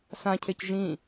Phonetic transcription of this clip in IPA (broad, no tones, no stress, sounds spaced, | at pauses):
s ã cʰ e c ʒ ĩ